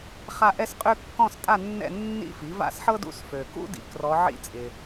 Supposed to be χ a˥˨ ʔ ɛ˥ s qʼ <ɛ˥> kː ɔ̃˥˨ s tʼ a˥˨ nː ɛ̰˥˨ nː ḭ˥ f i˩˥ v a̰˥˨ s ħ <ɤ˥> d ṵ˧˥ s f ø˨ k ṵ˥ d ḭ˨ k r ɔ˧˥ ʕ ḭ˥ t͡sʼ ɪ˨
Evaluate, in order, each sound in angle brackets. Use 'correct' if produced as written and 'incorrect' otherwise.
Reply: incorrect: ø˥, correct

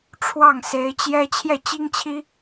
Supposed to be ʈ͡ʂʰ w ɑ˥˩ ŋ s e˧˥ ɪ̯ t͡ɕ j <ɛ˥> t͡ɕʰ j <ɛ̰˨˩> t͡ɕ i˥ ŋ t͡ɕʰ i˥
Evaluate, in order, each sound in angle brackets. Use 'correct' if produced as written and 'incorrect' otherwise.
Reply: correct, incorrect: ɛ˥˩

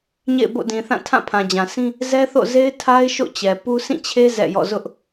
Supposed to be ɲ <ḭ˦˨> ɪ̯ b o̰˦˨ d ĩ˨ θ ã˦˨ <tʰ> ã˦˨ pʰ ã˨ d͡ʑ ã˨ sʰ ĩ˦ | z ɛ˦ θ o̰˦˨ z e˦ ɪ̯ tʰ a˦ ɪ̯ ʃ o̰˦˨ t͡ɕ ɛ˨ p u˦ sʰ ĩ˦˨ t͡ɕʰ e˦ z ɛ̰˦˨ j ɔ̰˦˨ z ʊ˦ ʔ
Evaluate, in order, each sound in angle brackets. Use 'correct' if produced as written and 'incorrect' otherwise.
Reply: incorrect: ḛ˦˨, correct

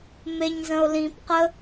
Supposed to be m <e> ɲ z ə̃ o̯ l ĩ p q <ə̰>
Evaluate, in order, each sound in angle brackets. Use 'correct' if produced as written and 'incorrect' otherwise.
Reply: correct, incorrect: ə

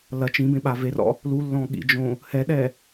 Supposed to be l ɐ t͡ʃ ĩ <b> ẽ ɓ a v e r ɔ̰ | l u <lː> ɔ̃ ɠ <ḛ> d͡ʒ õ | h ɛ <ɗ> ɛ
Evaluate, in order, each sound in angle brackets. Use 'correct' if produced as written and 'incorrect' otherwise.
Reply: correct, correct, incorrect: ḭ, correct

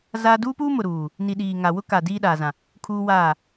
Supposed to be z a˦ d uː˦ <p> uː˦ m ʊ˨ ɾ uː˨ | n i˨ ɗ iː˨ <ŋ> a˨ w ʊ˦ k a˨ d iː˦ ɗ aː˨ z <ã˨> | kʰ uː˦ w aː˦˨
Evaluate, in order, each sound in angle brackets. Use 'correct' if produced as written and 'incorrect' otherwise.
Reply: correct, correct, correct

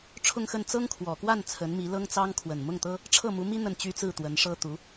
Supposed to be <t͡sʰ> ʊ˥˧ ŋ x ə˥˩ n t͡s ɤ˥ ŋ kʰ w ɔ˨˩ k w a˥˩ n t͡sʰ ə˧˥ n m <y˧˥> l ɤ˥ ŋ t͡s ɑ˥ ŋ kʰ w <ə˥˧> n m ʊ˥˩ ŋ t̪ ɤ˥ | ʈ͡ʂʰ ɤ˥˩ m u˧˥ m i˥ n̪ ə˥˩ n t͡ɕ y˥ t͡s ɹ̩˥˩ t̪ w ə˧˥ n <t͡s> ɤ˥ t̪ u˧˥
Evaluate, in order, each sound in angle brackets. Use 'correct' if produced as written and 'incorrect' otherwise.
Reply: incorrect: ʈ͡ʂʰ, incorrect: i˧˥, incorrect: ə˨˩, incorrect: ʂ

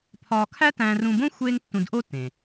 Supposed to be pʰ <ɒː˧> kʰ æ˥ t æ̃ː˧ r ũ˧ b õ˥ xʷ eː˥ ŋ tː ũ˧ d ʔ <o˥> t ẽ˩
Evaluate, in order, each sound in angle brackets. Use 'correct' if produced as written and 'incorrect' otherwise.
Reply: correct, correct

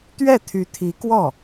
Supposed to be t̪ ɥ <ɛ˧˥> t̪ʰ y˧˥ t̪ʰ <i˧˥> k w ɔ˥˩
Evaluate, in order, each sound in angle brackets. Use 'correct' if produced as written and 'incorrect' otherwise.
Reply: incorrect: ɛ˥˩, correct

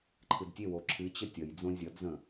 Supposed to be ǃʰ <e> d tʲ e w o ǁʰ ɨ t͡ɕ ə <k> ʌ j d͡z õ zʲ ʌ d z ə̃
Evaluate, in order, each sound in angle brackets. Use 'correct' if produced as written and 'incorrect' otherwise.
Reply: incorrect: ɨ, incorrect: tʲ

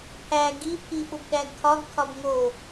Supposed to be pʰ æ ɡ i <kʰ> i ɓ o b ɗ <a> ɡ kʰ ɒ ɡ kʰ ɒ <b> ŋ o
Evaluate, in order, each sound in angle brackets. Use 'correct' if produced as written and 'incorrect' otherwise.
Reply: incorrect: pʰ, incorrect: æ, correct

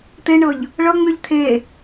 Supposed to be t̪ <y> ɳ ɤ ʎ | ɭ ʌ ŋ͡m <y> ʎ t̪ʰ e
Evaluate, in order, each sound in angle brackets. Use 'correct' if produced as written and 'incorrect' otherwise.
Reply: incorrect: e, correct

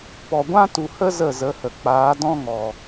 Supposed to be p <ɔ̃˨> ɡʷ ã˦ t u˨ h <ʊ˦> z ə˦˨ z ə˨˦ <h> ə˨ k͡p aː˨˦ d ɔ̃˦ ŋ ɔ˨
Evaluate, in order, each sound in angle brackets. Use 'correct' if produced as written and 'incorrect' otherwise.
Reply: incorrect: ɔ˨, incorrect: ə˦, correct

